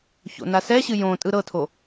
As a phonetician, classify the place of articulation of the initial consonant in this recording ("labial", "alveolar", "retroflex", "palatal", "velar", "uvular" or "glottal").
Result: palatal